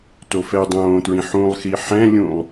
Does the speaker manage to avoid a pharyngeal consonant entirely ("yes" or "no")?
no